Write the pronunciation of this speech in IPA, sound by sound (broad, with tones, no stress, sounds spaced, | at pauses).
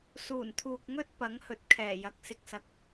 s uː˨˩ n t̪ʰ uː˨ k̚ ŋ ɵ˥ t̚ p ɐ˨˥ ŋ h ɵ˨˥ t̚ kʰ ɛː˨˩ j ɐ˨ k̚ s ɪ˨ k̚ s ɐ˨˥ k̚